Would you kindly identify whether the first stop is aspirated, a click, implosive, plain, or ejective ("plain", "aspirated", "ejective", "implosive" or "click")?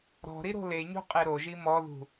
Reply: ejective